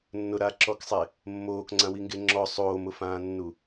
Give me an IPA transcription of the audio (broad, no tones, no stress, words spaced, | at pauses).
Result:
nːʊɾaǁɔksˤe | mːoːkŋ͡ǀãwiŋɡe ŋ͡ǁɔ sˤoːmʊfãːnːu